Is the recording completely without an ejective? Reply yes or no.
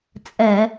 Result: no